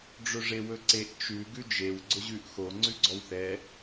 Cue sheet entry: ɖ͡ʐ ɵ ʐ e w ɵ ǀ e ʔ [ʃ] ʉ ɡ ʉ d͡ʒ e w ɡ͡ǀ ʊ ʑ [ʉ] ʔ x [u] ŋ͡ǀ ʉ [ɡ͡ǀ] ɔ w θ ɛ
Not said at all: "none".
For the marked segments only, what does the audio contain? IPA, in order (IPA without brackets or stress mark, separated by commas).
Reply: t͡ʃ, ʉ, o, ɡ͡ǀ